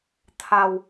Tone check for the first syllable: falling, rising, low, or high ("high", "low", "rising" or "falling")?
low